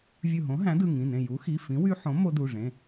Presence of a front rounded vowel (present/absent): present